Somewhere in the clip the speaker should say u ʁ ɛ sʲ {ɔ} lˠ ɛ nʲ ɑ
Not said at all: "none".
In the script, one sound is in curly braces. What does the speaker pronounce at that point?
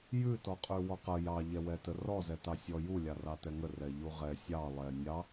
ɑ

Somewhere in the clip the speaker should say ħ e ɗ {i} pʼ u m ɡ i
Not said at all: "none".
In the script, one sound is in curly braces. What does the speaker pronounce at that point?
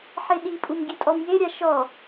i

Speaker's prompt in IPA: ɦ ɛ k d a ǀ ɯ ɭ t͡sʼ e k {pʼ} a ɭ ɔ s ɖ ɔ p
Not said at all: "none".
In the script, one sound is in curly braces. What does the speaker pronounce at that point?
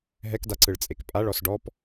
pʼ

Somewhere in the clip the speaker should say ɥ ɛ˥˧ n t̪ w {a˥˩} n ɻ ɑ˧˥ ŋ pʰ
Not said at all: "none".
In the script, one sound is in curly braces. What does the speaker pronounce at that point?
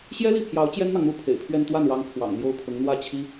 a˥˩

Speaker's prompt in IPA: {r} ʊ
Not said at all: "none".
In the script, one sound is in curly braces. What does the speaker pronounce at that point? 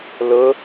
l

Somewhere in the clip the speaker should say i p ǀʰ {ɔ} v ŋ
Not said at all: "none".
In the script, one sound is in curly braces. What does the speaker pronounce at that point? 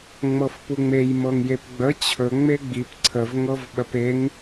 ə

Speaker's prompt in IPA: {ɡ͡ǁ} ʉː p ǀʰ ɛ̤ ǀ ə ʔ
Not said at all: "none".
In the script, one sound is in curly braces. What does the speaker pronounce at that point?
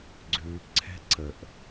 ɡ͡ǀ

